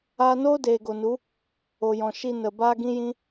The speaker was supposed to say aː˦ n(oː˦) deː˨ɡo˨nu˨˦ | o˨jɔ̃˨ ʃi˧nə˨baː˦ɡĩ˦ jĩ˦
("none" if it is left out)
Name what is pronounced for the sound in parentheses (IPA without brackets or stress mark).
oː˦